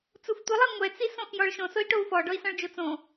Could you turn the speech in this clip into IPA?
t͡s u f tʷ i lˠ e ŋʷ ɛ t͡s i s õ x j ɔ ɭ ʃ õ s o i̯ ʈ o u̯ f ɔ ɖ ɔ i̯ s ɔ̃ ɭ d͡ʒ o t͡s õ

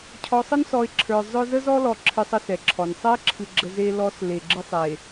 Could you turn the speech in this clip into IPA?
cʰ ɔ˨ sˤ ə˦ n s ɔ˨ ɪ̯ ǁʰ ə˞˨ zˤ œ˦ z ə˦ z ɔ˦ l ɔ˨ ǁʰ ɨ˨ sˤ ə˦ s ɛ˨ ǁʰ ɔ˨ n sˤ ɛ˦ ɪ̯ ǁʰ ɨ˨ ɡ͡ǁ ə˨ z e˦ l ɔ˨˦ s l e˨ ɡ͡ǁ ɨ˦ sˤ e˨

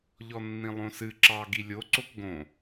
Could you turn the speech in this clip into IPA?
ʎ ɔ nː ĩ lˠ õ s ɨ ǁ ɑ ɡ i lʲ o ǀ o k ɡ õ

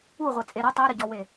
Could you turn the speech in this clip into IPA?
u ʁʷ e t͡sʼ e ɾ ɐ tˤ ɛ ɾ ə ɟ ɔ w e

